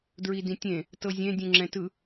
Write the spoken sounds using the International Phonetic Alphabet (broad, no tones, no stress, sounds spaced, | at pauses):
d ɹ i d ĩ tʲ ẽ | t ɤ zʲ ẽ dʲ ũ ŋ͡ǁ ɛ̃ t ɯ